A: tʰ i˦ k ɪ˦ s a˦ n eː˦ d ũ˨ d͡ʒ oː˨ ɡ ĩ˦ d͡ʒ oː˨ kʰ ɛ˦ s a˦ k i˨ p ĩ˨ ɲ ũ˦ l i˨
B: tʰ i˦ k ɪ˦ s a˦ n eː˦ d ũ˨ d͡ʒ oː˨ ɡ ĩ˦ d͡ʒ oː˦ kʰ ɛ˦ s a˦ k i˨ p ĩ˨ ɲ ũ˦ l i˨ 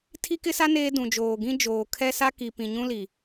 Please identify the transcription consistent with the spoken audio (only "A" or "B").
A